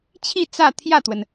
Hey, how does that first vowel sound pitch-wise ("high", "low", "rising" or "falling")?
falling